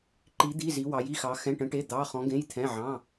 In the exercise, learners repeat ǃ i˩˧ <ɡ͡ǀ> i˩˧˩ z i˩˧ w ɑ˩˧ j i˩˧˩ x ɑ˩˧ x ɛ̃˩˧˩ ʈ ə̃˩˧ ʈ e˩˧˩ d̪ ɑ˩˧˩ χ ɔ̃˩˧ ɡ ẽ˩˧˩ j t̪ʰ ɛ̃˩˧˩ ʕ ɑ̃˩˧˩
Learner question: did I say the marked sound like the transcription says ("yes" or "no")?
no